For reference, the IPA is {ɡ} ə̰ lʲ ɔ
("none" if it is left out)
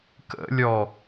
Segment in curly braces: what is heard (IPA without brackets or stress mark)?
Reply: k